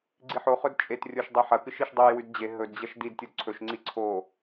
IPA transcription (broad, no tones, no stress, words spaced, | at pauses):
ɡ͡ǀiħoχɵd t͡ʃʼetrʲoʃdˤi ħɐkɨʃ iʃdˤuj wʉdd͡ʑe ɦɵdd͡ʑɐʃ did tʲodǀʰɵʃ ŋ͡ǀiǀʰo